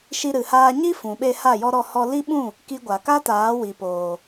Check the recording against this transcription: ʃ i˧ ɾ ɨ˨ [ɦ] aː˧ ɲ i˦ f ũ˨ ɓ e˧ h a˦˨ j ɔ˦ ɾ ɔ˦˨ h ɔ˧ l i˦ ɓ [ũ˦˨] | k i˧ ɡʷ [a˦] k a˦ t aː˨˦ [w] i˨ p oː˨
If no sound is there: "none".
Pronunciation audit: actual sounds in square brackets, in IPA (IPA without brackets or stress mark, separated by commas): h, ũ˦˨, a˨, w